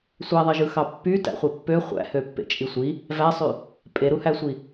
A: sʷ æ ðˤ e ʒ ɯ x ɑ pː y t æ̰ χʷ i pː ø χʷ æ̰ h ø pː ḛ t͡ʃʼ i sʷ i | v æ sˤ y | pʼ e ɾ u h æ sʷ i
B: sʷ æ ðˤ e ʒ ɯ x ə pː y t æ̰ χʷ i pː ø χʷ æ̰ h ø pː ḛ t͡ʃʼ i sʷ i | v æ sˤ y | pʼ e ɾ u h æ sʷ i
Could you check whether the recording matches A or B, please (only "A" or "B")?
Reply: A